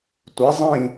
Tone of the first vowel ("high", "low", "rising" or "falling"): rising